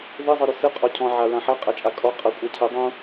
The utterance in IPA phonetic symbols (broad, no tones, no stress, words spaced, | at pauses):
ðɨ zˤɨɾusɨ qʼɔcʰɔ̃ ʕaɹãħa qʼat͡ʃʼakʼɔ qʼʌ kʷʼacʰɨ dˤũ